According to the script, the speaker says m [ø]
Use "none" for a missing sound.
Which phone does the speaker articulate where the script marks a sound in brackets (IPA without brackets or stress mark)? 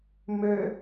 ø